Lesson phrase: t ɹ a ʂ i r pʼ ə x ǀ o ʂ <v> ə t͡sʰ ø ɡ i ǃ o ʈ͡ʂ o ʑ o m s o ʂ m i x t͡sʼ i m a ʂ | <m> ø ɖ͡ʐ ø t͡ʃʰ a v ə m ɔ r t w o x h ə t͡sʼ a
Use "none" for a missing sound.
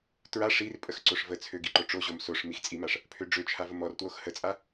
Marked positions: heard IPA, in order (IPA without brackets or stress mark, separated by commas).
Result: v, pʰ